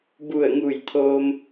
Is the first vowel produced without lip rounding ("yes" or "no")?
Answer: no